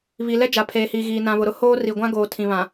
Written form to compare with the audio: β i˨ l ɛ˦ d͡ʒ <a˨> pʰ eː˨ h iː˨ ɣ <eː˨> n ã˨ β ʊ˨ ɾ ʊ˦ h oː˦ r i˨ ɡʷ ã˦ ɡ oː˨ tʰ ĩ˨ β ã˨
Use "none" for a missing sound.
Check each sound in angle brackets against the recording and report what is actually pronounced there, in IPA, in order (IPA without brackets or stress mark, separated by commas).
a˨, iː˨